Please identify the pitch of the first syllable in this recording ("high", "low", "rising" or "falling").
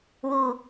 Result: low